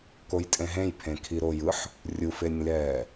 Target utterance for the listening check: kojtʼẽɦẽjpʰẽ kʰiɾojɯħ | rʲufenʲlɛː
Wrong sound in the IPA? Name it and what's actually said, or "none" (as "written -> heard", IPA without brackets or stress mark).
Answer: none